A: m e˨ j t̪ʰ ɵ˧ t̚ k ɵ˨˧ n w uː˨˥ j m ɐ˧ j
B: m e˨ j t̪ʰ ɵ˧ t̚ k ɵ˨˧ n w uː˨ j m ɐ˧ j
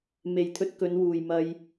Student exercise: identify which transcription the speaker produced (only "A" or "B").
B